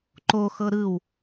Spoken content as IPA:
ǃ o x ɤ ɾ ɯ w

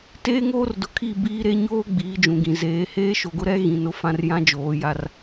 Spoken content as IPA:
t eː˦ ŋ oː˦ r d ʊ˨ kʰ i˦˨ b iː˦ ɾ e˦ ɲ oː˦ ɡ͡b iː˨˦ d͡ʒ ũ˨ ɡ ĩ˨ z eː˨˦ h eː˦ ʃ o˨ ɡ ʊ˦ ɾ ɛ˦ ɣ ĩ˨ n ʊ˦ f ã˨ r j ã˦ d͡ʒ oː˨˦ j a˦ r

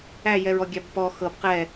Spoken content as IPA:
æ j ɛ ɹ ɔ ɡʲ æ b p ɔ x ɤ b q ɛ

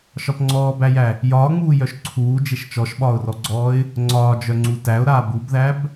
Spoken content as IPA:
ʃ ɒ p ŋ͡ǀ ɔː b æ j æ | j ɒː ŋ͡m uː j œ ʃ ǀʰ uː d͡ʒ e ʃ t͡ʃ ɔ ʃ ɓ ɒː ʊ̯ r ɔ ɡ͡ǀ ɔː ɪ̯ | ŋ͡ǀ ɒː d͡ʒ œ ŋ͡ǀ u t æ ʊ̯ ɾ aː b u b ð æ b

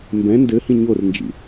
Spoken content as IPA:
m b ɛ̃ n d ɘ h ĩ ɲ o r n d͡ʒ ḭ

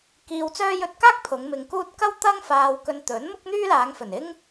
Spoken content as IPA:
k iː˧ w t͡s œː˥ j ɵ˧ t̚ k aː˥ k̚ pʰ ʊ˨˧ ŋ m ɪ˨ ŋ k uː˥ t̚ k ɐ˥ w t̪ ɐ˥ ŋ f aː˧ w k ɵ˧ n t̪ ɵ˨˥ n m ʊ˥ k̚ n̪ yː˥ l aː˨˧ ŋ f ɵ˨˩ n ɪ˥ ŋ

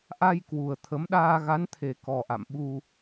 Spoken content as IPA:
ʔ a˧ j k w u˨˩ ə̯ t̪ʰ ə˨˦ m ɗ aː˧ ɣ a˨˦ n t̪ʰ e˨˩ k ɔ˨˩ ʔ a̰˧˨ m ɓ u˧

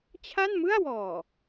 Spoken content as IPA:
t͡ɕʰ a˥˩ n m ɯ˥˩ a̯ w ɔː˨˩

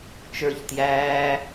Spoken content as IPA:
t͡ʃ ə˞ ç t j æː

